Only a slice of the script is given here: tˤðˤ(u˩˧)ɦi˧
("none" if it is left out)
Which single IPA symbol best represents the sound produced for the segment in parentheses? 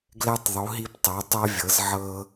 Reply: u˩˧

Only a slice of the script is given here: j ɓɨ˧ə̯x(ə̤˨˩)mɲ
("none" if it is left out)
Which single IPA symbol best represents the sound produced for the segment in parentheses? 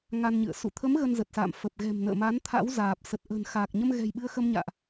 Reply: ə˧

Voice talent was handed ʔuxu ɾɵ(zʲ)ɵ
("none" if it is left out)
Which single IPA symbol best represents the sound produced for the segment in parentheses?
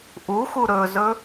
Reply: z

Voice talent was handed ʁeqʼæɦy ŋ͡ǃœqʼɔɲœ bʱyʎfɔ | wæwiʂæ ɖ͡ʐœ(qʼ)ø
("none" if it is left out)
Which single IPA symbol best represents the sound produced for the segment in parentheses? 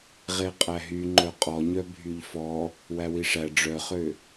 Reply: χ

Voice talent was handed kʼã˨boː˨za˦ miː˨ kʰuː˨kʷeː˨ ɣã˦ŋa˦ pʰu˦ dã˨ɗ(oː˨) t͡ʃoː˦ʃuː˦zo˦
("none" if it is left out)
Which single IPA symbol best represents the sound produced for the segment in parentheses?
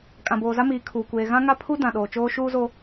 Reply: oː˨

